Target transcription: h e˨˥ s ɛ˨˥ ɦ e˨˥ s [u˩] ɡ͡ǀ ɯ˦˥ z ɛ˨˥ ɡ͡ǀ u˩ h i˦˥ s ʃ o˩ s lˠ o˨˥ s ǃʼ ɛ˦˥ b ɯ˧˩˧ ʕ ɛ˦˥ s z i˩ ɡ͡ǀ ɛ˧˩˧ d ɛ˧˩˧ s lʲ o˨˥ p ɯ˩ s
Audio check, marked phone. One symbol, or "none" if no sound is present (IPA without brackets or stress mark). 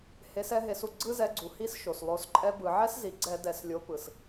u˩